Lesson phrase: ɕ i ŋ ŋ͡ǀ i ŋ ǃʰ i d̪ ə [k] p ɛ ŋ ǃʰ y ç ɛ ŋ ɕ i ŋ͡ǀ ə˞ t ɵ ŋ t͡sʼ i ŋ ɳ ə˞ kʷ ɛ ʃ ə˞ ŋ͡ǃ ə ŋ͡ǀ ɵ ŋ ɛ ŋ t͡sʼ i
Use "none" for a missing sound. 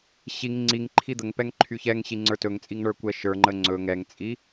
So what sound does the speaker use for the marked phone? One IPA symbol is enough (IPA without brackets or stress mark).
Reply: ŋ